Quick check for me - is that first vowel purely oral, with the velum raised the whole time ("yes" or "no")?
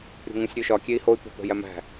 yes